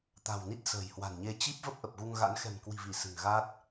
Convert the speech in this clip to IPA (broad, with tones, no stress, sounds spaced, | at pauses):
t̪ a̤˨˩ w n i˦˥ t̚ s ə̤ː˨˩ j h w a̤˨˩ n ɲ e˧ t͡ɕ i˦˥ p̚ v ə˦˥ p̚ ʔ ə˨˩ p̚ ɣ u˧ ŋ ɣ a̰˧˥ n x ɛ̤˨˩ m k w i̤˨˩ v i˧˩ s ɨ̤˨˩ ŋ ɣ a˦˥ t̚